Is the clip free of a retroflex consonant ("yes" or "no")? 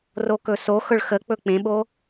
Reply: no